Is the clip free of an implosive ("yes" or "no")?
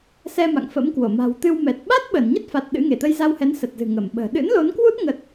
no